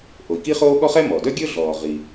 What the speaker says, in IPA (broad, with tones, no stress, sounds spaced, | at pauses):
ʔ o˩ i̯ k i˥ χ oː˥ ɠ ɔ˥ χ ɛ˥ m ɔ˩ d œ˥ ɡʲ ɵ˥ ɮ ɔː˩ ʁ i˩